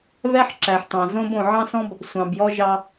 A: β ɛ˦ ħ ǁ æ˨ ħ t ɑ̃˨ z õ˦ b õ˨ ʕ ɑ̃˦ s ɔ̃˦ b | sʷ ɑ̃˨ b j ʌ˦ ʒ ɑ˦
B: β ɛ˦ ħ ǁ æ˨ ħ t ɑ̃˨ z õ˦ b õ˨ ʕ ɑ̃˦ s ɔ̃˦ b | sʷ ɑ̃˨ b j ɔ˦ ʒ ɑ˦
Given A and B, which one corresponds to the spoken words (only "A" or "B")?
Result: B